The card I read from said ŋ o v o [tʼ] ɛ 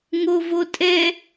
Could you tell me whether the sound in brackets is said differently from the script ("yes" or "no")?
no